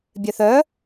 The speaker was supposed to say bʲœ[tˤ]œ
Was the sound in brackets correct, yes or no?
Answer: no